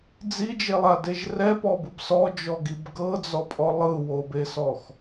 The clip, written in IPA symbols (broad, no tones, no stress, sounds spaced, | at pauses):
d͡z i d͡ʒ e lˠ a d e ʒ r ɛ p ɔ b ɯ b s ɔ d͡ʒ ɔ ɡ i b ɡ ɤ d͡z ɔ pʼ ɔ lˠ ɯ w o b e s ɔ x